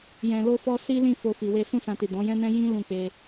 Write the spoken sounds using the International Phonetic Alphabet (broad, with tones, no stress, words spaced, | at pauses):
jɛ̃˨lo˧fɔ˧ si˦lĩ˦˨ fo˧fi˨we˧ sũ˦sã˧ti˨ dɔ̃˨˦jɛ̃˦nɛ̃˦ jĩ˦ lũ˦˨k͡pe˧